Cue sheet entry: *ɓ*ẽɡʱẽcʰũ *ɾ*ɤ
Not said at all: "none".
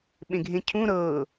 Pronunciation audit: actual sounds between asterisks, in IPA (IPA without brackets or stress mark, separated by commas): ɓ, ɾ